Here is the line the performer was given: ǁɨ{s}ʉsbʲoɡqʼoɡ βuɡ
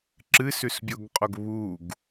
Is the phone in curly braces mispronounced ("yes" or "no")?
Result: no